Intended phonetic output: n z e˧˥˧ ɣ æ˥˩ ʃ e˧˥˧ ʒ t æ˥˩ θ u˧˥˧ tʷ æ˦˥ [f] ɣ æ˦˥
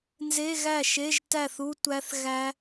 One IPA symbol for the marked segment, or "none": θ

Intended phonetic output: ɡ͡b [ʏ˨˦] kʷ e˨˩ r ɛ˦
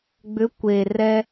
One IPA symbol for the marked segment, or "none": ʏ˨˦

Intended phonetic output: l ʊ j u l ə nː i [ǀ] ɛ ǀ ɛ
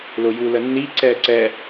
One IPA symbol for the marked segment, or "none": ǀ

